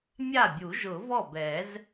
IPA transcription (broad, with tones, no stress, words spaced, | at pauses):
mʲa˥˩bʲu˨˩˦ʒʊ˨˩˦ vɔ˥˩bɛ˨˩˦z